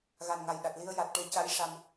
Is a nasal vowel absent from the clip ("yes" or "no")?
yes